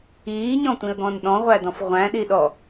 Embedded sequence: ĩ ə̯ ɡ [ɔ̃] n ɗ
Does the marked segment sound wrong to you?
no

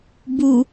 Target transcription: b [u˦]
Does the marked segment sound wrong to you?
yes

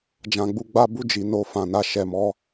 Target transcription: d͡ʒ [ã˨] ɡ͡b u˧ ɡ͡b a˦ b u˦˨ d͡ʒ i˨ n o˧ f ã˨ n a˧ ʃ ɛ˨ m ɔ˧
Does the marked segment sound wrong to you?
no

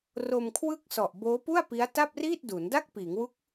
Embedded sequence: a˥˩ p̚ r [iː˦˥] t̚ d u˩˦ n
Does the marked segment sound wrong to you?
yes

